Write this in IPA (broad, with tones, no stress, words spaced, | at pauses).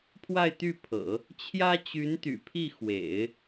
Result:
pʰwa˥˧ɪ̯t̪y˥˩pʰɤ̰˨˩˦ | t͡ɕʰjä˥t͡ɕy˧˥nt̪y̰˨˩pʰi˥˩ xwḛ˨˩˦ɪ̯